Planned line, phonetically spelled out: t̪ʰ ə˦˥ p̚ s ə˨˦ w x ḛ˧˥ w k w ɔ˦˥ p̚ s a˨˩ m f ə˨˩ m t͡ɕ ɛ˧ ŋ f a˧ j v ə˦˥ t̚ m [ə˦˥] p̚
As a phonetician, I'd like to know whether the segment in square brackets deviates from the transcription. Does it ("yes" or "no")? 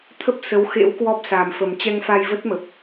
yes